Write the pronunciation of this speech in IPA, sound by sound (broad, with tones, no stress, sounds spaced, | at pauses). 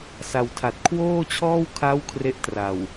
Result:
s a˨˩ w tʰ a˨˩ t̚ kʰ w oː˥˩ t͡ɕʰ ɔː˥˩ w kʰ a˦˥ w kʰ r e˦˥ ʔ t r a˨˩ w